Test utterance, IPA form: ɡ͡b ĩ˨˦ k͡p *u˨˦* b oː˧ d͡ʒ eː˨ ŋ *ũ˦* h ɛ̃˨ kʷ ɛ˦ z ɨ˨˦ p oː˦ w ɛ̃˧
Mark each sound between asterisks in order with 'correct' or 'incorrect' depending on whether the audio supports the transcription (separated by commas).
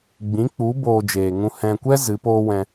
correct, incorrect